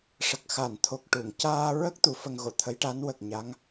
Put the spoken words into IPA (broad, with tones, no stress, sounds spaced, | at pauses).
ʂ ə˨˩ k̚ x a˨˩˨ n t̪ʰ o˨˩ k̚ ʈ u˨˩˨ ŋ c aː˧ ɹ ə˦˥ k̚ t̪ u˨˩˦ f ə˧ ŋ ɣ o˨˩˨ t̪ʰ ə˧˥ j ʈ a˧˥ n w ə˨˩ k̚ ɲ a˧˥ ŋ